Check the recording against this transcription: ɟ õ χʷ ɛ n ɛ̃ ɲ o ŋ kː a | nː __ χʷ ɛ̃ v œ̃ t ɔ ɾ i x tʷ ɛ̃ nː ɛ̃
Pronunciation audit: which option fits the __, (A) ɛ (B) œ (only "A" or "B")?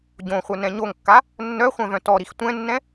B